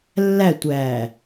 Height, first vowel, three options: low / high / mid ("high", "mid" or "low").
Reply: low